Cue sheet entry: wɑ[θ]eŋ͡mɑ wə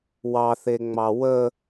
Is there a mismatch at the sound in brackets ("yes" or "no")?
no